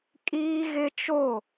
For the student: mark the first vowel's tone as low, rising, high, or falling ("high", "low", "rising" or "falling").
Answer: high